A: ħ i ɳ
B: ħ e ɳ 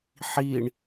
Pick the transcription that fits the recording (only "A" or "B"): A